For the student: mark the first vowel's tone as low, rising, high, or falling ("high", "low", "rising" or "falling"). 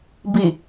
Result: low